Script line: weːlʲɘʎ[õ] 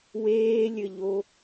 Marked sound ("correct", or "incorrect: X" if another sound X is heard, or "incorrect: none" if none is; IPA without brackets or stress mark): incorrect: o